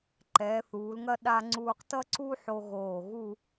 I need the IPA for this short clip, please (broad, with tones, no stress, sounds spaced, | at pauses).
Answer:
ǃ ɛː˩˧ θ uː˩˧ l ŋ ɐ˥˧ ɗ a˧ ŋ͡ǀ uː˧ q t ʌ˥ ǀ u˥ ħ o˧ ɣ oː˧˩ ɣ u˥˧